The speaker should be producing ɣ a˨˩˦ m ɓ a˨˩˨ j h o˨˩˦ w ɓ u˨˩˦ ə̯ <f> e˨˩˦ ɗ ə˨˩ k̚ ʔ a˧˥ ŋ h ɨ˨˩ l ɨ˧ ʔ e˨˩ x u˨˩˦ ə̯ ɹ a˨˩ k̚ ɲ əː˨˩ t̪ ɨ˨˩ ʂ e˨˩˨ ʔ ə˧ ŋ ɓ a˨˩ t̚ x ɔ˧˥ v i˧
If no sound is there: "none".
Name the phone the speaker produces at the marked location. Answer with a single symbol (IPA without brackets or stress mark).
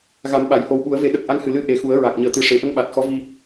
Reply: v